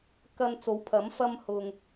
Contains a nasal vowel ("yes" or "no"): no